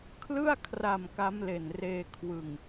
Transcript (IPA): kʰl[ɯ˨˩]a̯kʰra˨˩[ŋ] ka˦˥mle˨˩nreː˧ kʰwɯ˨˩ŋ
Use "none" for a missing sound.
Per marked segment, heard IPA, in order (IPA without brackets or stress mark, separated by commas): ɯ˥˩, m